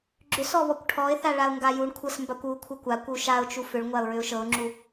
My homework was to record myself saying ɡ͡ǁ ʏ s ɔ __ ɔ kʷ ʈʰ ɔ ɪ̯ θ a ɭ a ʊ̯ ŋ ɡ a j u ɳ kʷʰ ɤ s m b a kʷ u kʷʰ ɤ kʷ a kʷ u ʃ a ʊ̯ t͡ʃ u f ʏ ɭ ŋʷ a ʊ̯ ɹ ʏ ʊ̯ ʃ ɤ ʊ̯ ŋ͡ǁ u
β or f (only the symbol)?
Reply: β